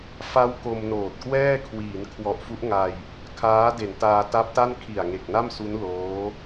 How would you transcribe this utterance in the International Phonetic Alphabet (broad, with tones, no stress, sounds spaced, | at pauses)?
f a˦˥ w k o˧ m n oː˨˩ t̚ k w ɛː˥˩ kʰ w iː˩˦ n kʰ w ɔ˨˩ ʔ f u˦˥ ʔ ŋ a˧ j | kʰ aː˦˥ d e˨˩ n t aː˧ t a˦˥ p̚ t a˥˩ n kʰ i˨˩ a̯ ŋ e˨˩ k̚ n a˥˩ m s u˦˥ n l oː˦˥